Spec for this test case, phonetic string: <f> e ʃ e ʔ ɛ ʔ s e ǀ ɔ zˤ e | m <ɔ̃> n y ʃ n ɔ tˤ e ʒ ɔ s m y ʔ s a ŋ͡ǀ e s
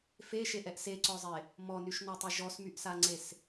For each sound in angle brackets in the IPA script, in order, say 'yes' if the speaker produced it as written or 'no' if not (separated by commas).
yes, no